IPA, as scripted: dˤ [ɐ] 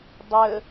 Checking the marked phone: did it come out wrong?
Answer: yes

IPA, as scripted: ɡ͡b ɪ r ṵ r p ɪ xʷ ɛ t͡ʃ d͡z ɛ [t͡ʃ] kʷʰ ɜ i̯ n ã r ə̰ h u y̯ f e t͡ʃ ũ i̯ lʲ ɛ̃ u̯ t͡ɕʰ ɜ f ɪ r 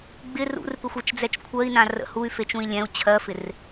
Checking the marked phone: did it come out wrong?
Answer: no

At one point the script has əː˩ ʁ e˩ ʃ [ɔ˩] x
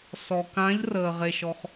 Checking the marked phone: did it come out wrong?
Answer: no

